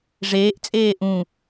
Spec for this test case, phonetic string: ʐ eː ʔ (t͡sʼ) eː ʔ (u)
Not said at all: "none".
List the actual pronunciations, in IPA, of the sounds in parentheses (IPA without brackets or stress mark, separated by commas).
t͡sʼ, ũ